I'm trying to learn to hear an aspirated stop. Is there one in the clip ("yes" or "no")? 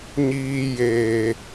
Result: no